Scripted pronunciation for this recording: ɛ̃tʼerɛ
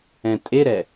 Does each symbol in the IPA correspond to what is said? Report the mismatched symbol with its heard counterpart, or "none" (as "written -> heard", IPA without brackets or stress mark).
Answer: r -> ɾ